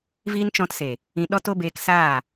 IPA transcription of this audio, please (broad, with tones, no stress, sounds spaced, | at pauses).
v iː˦ n t͡ʃ ɔ̃˧ t s e˨ | ĩ˧ ɗ ɔ˧ t o˧ b eː˧ k s aː˦˨